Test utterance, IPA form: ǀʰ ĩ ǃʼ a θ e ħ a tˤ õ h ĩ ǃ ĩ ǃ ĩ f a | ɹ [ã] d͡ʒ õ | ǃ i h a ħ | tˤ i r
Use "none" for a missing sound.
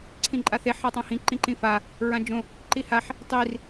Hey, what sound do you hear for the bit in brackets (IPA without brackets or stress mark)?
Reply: ã